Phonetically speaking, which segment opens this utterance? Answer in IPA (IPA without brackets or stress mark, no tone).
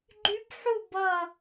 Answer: ɡ͡ǃ